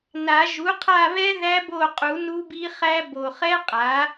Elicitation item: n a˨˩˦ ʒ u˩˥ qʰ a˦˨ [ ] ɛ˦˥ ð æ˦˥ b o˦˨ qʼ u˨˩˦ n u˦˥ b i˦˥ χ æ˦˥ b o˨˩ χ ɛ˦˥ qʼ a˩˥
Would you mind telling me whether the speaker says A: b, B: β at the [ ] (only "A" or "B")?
B